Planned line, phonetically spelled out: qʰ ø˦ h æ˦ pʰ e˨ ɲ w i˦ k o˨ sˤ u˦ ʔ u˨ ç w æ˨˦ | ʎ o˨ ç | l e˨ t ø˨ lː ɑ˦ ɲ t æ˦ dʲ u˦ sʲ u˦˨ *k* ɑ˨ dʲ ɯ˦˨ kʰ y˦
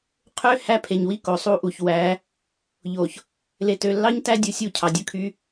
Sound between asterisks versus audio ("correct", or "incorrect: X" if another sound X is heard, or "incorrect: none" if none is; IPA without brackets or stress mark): incorrect: cʰ